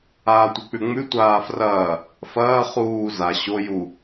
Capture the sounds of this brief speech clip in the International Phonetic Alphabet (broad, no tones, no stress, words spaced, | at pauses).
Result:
aːtʷek͡pʉŋ͡mʉ tʷaːfrɐː | fɐː χuː za ɕo ju